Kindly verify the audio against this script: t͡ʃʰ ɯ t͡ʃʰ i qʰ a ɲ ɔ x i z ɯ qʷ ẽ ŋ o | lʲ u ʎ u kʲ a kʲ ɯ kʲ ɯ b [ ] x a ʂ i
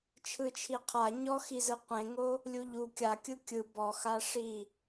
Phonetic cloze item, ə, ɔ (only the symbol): ɔ